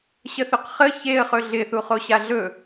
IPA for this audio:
ɕ ə θ ɵ q χ ə ç e ə̯ χ ɵ ɮ ɪ θ u χ o ɕ a ɮ ɵ

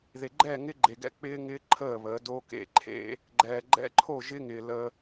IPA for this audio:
ð e˨ ɡ͡ǃ ɛː˦˨ ŋ ɪː˦ ɡ͡ǃ e˨ ɡ ɛ̰˦ k͡p ɪː˦ ŋ ɪː˦ ǃʰ əː˦˨ β əː˨˦ d o˦ k ḛ˨ ǃʰ ḛ˦ | ɡ͡ǃ ɛː˨ ɡ͡ǃ ɛ̰˦ ǃʰ o˦˨ ʒ ɪ˦ ŋ ɪː˨ l ə˦

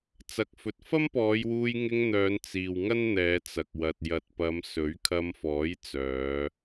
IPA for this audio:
t͡s ɐ˨˥ k̚ f ɵ˨ t̚ f ɐ˥ m p ɔː˨˧ j w uː˧ j ŋ ɪ˧ ŋ n̪ œː˨˧ n t͡s iː˨ w ŋ ɐ˥ n n̪ ɛː˨˧ t͡s ɐ˨ k̚ w ɐ˨ t̚ j ɐ˨ t̚ p ɐ˨˧ m s ɵ˨˥ ɥ kʰ ɐ˧ m f ɔː˨˥ j t͡s œː˨˧

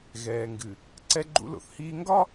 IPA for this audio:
ɣ ɛː˨ ŋ ɡ ɨ˨ | ǀ ɛ˦ ɡ͡ǃ ṵ˦ l o̰˨ θ h iː˦ ŋ ɡ ɒ˦

